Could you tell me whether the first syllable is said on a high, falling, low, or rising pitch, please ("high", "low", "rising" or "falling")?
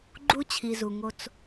high